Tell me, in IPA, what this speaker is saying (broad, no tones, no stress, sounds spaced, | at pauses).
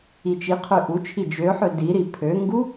i t͡ʃ i qʰ ø ʔ u t͡ʃʰ i d͡ʒ ø ħ ø d i ɾ i pʰ ø ŋ ɡ u